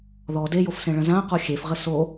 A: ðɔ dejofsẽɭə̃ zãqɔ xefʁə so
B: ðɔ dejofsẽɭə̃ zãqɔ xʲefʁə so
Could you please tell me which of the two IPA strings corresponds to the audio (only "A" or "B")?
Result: B